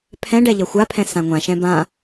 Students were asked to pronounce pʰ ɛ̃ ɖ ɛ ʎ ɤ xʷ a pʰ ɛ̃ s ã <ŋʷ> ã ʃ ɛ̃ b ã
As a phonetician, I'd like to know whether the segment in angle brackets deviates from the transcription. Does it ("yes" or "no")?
no